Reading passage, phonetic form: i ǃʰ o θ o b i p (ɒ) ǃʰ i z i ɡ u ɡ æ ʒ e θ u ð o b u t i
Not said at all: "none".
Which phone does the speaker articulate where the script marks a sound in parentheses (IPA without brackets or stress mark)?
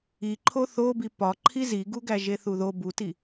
ɒ